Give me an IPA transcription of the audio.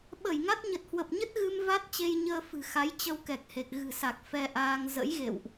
ɓə˧˩jŋa˦˥t̚ ɲə˨˩t̚hwə˨˩p̚ɲə˦˥t̚ɣɨ˧m va˦˥t̚ t͡ɕe˧jɲəː˧ fɨ̤˨˩xa˨˦jt͡ɕə˧w kɛ˨˩k̚he˨˩k̚ ɣɨ̤˨˩sa˨˩k̚ fɛ˧ʔaː˧ŋ zə̰˧˥jɣḛ˧˨wʔ

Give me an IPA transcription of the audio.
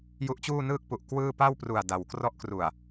ju˦˥ʔt͡ɕuː˥˩nɯː˥˩k̚ pu˨˩ʔ kwɯː˥˩ pa˥˩wpru˨˩a̯ da˩˦w krɔ˦˥ʔkru˨˩a̯

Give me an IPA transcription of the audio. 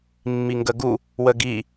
mːiŋɡəɡu | wəɡi

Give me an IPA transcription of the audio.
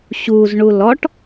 ɕuzɳu lɔʈ

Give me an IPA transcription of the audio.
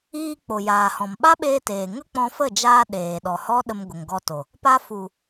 iː˧k͡po˨jaː˨hɔ̃˨m ɓa˦ɓeː˧teː˨ŋə˦ k͡pɔ̃˧fə˦˨d͡ʒaː˧ ɗeː˨ɗɔ˨hɔ˦ ɗə˧mɡʷə˨ŋɡɔ˧to˨ | pa˧fu˨

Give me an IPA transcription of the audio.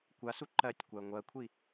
kʷasu ǃɜtʲ kʷaə̯ŋʷɜkʷʰi

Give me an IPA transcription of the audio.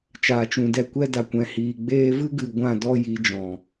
t͡ʃaː˨t͡ʃũ˨dɛ˧ kʷɛ˦da˨ kʷɛ̃˨hiː˨ɡ͡beː˦ vɨ˦ɡɨ˨ ɡʷã˦˨dɔ˦ ji˨˦d͡ʒɔ̃˨

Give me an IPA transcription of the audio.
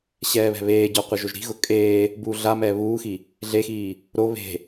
ɕɛːβɛ̤βeːɟɔ qʷɪʒoʒɾi̤ɣʊ kʼeː | buːɮamɛː βuːxi | ɮexiː | ɾo βe̤

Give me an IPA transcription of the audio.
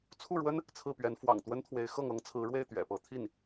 t͡sʰu˥˩ɻwə˥n | t͡sʰɹ̩˥˩pɥɛ˧˥n fwɑ̰˨˩ŋ t̪wə˥nt̪ʰwe˧˥ɪ̯xɤ˥˩ŋ ɤ˥ŋt͡sʰɹ̩˧˥ɻwe˥˩ɪ̯ t̪ɥɛ̰˨˩pɤ˧˥ t̪ʰi˥˩n

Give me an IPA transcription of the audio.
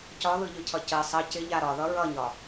cɒðɯʎɯcʰʌ cə sˤʌ cɪʎa ɾɒðʌ ɹʌɲɒ

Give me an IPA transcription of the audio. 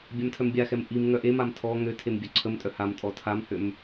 bʲamtʰœmbʲaxɛm ʔim ŋœʔemam tʰɔ ŋøtʰem bʲœǀʰəmtʼœ hamtʼɔ tʰamhøm

